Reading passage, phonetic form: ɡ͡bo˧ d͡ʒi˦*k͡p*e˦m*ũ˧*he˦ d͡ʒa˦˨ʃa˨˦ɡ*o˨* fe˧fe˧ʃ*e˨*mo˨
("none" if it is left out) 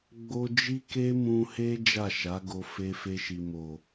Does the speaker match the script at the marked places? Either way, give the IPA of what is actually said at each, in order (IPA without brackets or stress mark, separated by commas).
k, ũ˧, o˧, i˨